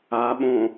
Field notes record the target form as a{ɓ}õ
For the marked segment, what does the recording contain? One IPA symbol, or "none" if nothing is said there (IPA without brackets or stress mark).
ɓ